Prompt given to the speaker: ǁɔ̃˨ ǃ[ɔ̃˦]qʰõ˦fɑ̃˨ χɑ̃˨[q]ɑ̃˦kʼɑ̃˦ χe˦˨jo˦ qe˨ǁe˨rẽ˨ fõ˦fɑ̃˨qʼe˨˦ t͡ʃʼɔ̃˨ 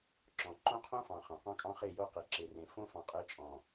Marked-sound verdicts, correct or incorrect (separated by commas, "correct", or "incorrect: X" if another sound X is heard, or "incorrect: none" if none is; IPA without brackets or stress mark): incorrect: õ˦, correct